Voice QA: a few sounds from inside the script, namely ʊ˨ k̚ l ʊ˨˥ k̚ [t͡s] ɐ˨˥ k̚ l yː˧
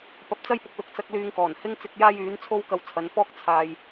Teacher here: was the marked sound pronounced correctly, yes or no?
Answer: yes